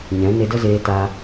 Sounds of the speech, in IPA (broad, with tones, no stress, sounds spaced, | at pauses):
ɲ ɛ̃˨˦ n e˧ d ə˦ z eː˧ t a˧